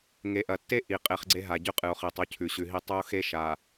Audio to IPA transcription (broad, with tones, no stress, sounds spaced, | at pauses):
ŋ e˨ ʔ ɐ˨ tː e˦ ʔ i˨ qʼ e˦˨ χ ɡ͡ǀ e˦ ɦ a˨ ɟ ʉ˦ qʼ ɨ˨ o̯ χ i˨ tˤ u˦ cʰ ʉ˨ ɕ ʉ˨ ɦ i˦ tˤ ɵ˦ o̯ x e˦ ʃ a˨